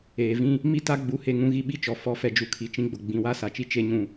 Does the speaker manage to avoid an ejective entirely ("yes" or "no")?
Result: yes